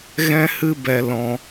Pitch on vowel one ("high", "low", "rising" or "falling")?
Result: high